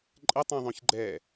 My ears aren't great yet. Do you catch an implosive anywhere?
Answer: no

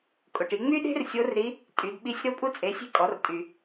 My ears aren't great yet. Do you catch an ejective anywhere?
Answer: yes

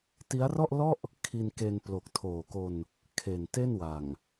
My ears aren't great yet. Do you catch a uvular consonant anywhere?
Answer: no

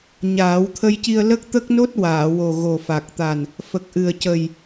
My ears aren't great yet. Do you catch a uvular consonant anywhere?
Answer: no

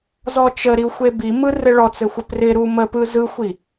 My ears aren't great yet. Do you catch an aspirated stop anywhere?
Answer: no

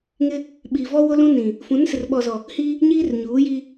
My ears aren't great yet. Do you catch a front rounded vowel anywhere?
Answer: no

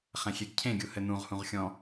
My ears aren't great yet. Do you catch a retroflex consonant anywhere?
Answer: no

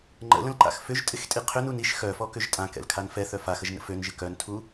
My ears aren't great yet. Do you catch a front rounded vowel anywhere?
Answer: yes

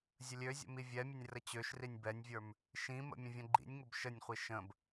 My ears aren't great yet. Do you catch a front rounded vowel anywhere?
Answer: yes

